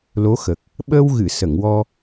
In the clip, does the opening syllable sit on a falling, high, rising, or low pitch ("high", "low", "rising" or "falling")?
rising